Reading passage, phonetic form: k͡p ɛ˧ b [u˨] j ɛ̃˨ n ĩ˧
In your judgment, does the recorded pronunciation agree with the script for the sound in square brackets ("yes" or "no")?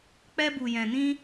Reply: yes